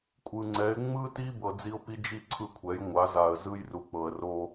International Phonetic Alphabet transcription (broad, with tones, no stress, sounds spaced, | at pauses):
kʷʼ ɯ˨ ŋ͡ǀ ɛ˨˦ ɪ̯ ŋ͡m ɯ˦ t i˦ b ɤ˨ d͡z i˦ ʊ̯ p i˦ d͡ʒ i˦˨ ǀʰ ɯ˦ kʷʰ ɛ˨˦ j ŋʷ a˨˦ z a˨ ə̯ z ɯ˦ j r u˨ k͡p ɤ˨ ə̯ r o˦